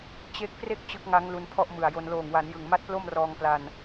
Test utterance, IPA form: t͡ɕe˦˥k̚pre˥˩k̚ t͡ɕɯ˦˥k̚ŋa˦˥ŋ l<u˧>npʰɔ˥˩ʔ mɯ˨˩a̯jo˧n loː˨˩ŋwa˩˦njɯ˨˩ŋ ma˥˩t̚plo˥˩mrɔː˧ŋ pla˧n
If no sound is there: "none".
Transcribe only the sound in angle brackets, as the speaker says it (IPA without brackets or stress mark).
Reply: u˧